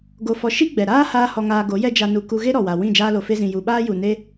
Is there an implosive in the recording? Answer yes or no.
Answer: yes